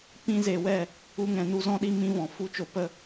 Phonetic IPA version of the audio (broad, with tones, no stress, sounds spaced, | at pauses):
p ĩ˧ z e˨ w ɛ˦˨ | u˧ ŋ ɛ̃˨ n u˧ z ɔ̃˧ ɗ i˧ m ĩ˧ v ɔ̃˨ f u˦ t͡ʃ o˧ p ə˦˨